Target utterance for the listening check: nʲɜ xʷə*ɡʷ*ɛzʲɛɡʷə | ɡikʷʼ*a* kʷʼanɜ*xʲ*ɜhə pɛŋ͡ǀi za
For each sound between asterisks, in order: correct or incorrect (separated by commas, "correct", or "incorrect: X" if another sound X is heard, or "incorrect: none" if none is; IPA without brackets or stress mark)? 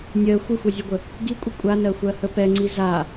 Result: incorrect: xʷ, incorrect: ə, incorrect: xʷ